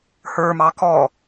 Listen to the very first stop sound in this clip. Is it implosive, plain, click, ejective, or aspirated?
plain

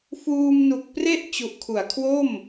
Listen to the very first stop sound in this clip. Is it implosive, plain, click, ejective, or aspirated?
plain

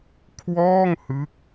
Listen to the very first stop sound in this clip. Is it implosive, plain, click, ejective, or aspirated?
aspirated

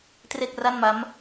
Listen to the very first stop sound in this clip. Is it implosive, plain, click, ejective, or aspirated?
plain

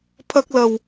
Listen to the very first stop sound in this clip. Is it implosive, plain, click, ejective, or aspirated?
aspirated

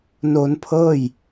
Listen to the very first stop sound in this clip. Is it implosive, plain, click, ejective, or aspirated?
aspirated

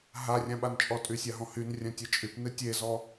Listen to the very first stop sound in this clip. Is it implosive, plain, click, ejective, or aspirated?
implosive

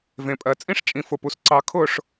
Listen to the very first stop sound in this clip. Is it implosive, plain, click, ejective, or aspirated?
ejective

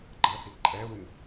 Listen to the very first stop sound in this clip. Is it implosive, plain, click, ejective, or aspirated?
click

